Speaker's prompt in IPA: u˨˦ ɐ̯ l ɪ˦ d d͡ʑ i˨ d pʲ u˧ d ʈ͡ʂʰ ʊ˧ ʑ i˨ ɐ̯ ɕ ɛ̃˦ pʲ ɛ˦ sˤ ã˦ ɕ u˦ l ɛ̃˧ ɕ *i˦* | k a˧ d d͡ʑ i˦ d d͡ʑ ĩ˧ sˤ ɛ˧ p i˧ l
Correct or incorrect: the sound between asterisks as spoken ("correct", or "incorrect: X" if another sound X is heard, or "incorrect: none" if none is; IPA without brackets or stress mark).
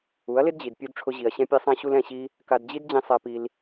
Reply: correct